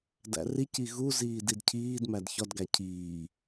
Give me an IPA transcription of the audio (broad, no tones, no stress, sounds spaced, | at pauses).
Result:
d æ̰ r i c i ɣ u z iː d i d cʰ iː d m æ d ç ɒ d ɡ æ cʰ iː